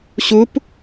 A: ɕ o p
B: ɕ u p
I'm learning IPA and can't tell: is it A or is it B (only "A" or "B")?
B